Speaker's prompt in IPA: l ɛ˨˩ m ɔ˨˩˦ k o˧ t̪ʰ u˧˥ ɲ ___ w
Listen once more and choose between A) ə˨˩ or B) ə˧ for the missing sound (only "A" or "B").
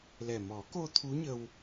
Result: B